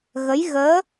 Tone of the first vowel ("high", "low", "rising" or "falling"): rising